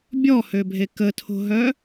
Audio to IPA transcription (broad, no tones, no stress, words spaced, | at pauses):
bʲɔhøbʱe kətʰo̤ɦœ